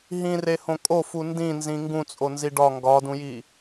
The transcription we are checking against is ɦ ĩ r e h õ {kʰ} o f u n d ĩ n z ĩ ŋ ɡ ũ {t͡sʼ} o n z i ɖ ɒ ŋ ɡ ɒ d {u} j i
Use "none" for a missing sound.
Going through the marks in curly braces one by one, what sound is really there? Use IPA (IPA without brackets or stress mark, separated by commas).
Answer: kʼ, t͡sʼ, ũ